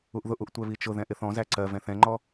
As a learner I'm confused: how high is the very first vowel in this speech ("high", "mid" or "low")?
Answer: high